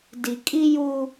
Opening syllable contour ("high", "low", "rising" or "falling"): low